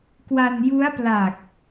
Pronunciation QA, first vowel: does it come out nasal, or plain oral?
oral